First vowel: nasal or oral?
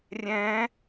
nasal